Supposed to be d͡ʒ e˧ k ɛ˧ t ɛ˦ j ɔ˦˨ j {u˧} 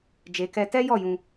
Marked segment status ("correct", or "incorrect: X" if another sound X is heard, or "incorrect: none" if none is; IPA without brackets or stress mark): incorrect: ũ˧